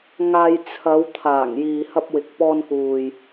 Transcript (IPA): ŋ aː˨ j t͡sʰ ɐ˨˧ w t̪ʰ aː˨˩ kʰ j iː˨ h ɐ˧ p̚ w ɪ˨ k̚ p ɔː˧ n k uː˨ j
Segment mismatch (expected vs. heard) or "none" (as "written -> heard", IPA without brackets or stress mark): kʰ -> ŋ